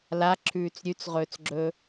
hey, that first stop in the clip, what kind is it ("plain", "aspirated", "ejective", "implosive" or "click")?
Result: click